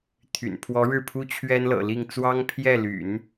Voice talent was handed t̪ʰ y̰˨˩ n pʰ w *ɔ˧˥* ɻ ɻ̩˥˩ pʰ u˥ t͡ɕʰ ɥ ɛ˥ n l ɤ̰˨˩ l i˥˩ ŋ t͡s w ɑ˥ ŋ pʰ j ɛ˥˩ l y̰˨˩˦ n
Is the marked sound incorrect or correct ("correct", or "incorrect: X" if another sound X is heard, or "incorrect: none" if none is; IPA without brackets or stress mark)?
correct